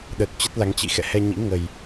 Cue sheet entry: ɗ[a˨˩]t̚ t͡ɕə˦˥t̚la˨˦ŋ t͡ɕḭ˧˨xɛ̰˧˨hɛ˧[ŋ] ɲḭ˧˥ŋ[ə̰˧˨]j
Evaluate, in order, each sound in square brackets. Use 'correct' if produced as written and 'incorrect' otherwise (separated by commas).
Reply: incorrect, incorrect, incorrect